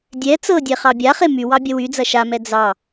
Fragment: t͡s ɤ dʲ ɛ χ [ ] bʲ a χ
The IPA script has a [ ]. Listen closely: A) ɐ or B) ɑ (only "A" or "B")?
B